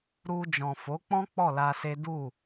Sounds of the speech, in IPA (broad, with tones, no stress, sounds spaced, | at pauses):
ɾ u˧ d͡ʒ ɔ̃˨ f o˨˦ k͡p ɔ̃˦ k͡p ɔ˦˨ l a˧ s e˦ d u˦˨